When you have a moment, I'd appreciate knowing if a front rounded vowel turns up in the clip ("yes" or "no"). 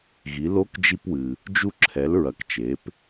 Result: no